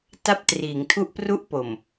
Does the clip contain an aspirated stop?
yes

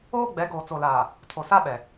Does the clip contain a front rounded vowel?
no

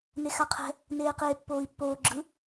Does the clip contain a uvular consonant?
yes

